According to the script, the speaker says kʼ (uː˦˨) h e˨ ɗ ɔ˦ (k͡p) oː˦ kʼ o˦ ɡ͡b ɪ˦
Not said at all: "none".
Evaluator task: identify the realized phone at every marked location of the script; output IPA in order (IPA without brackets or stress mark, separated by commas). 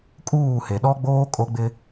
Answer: uː˦˨, ɡ͡b